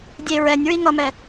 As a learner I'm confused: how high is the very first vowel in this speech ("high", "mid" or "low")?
mid